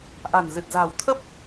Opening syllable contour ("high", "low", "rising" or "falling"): low